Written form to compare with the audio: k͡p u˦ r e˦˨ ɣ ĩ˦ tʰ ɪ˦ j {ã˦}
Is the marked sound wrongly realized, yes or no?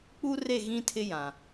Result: yes